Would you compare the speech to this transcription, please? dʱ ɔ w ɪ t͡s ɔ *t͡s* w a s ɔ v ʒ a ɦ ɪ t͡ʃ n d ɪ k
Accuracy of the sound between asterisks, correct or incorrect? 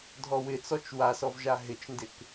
incorrect: t͡ʃ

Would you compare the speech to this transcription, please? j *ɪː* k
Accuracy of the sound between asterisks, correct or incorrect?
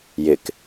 incorrect: ɪ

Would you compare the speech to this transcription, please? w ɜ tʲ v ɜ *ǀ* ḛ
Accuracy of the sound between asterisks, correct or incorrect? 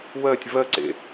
correct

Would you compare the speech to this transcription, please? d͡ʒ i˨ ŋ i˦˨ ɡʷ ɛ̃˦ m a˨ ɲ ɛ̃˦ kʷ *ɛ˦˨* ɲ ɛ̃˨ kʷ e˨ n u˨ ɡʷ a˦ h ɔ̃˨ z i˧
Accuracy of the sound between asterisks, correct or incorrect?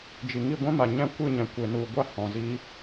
incorrect: ɨ˦˨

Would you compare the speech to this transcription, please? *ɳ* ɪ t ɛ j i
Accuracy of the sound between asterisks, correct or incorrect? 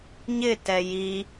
incorrect: ɲ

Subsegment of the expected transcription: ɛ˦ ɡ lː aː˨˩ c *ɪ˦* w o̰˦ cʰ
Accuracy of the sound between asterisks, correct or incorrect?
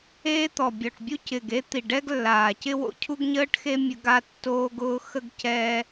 correct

